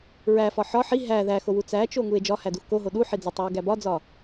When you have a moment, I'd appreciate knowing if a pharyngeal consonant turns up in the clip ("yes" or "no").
yes